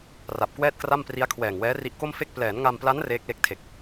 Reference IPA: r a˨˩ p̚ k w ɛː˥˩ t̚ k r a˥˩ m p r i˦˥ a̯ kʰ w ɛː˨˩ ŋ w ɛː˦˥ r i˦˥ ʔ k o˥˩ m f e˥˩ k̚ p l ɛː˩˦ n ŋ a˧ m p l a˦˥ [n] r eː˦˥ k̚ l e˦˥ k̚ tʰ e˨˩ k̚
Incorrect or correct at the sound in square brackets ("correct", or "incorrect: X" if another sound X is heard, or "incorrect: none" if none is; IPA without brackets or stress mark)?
correct